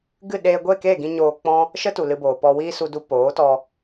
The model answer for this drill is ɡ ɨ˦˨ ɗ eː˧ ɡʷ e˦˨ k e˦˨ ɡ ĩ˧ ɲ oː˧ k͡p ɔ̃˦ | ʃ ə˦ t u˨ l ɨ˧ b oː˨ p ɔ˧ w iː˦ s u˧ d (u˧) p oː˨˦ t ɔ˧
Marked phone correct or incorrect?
correct